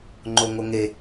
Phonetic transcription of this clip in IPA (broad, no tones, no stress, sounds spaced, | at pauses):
ŋ͡ǃ o ŋ o ŋ e